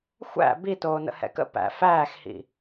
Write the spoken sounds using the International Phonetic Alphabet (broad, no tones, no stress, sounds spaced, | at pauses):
xʷ æ̰ b i t oː n ə̰ h ɛ̰ k ə̰ p æ̰ f æː x h ḭ